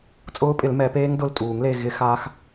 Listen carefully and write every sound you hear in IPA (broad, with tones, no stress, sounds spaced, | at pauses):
t͡sʼ ʊː˦˥ pʼ ɪ˨˩˦ l m ɛ˨˩˦ p eː˦˥ ŋ d ʊ˥˧ l tʼ uː˨˩˦ ŋ l e˥˧ ɣ ɪ˦˥ x aː˦˥ x